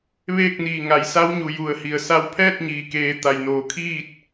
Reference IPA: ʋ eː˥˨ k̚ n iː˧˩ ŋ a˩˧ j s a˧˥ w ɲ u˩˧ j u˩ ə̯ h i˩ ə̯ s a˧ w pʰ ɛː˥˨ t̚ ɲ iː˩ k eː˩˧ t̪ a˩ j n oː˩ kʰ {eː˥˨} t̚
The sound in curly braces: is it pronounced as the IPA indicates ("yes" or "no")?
no